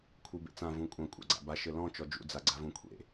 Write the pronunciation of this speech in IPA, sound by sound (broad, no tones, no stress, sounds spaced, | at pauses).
kʷʰ ɨ b ḛ t͡s ã v ũ kʷʼ ɐ̃ kʷʼ a̰ ɡ͡ǀ a̰ b a ʃ ɘ l ɔ̃ t͡ʃ ɔ d͡ʒ ṵ d͡z a ɡ͡ǀ a v ũ kʷʰ ḛ